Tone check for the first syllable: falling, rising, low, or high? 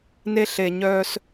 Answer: high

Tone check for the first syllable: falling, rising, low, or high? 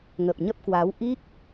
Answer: low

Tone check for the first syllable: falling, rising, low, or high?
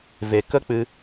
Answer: low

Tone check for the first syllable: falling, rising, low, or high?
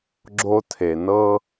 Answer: high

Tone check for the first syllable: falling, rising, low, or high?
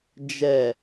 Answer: low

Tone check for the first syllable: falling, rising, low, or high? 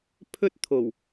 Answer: high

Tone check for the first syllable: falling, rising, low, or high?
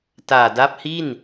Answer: low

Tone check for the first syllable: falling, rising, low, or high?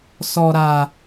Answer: low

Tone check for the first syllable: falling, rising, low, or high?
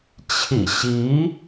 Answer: low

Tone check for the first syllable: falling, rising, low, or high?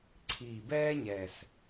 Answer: low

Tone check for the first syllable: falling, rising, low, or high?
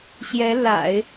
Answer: rising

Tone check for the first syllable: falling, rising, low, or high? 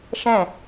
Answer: falling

